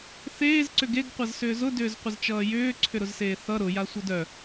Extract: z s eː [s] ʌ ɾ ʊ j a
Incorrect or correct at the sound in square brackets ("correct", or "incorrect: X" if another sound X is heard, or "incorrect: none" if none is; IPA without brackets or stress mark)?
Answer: incorrect: θ